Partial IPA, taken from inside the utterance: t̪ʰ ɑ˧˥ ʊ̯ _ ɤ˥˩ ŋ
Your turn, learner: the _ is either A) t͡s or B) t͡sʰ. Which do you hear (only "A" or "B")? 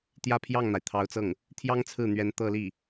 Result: A